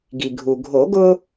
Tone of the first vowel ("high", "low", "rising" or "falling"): low